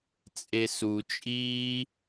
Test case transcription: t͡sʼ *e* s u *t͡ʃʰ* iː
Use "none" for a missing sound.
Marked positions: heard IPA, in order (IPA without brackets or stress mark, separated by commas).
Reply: e, t͡ʃʼ